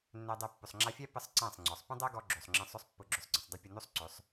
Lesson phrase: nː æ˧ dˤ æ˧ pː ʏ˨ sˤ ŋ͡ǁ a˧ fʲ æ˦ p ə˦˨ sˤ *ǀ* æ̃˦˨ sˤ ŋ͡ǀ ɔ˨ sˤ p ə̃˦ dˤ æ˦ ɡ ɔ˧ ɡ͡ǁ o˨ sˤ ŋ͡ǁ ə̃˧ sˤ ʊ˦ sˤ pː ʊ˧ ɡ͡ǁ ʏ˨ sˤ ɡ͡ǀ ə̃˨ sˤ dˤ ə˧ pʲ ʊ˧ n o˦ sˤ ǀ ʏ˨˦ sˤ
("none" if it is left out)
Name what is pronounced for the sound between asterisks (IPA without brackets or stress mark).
ǀ